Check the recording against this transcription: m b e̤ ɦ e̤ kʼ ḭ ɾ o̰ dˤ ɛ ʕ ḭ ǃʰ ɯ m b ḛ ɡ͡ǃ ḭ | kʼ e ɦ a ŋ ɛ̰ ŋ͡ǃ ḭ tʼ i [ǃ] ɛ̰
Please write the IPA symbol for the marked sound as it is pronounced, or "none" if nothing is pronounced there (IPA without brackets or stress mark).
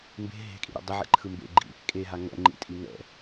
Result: ŋ